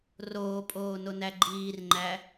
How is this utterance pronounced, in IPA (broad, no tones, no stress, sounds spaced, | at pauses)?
r oː pʼ oː n o n æ ɡ͡ǃ iː r ŋ͡ǃ æ